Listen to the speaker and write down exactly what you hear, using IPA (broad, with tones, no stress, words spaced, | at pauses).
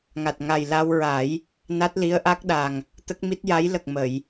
ŋa˨˩t̚ŋa˨˩j la˧wɹa˨˩˦j | na˦˥t̚li˧˥ə̯ʔa˦˥k̚ɗa˨˩ŋ | t̪ə˦˥k̚mi˦˥t̚ja˧˥j lə˨˩k̚ mə˨˩˨j